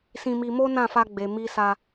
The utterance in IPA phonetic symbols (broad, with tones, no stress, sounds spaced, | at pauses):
s ĩ˧ m i˧ m o˦ n ã˦˨ f a˧ ɡ͡b e˨ m i˧ s a˧